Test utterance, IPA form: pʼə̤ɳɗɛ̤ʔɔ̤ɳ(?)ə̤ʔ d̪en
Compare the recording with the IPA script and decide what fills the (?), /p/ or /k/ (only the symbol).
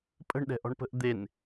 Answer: p